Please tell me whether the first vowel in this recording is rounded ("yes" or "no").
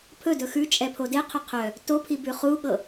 yes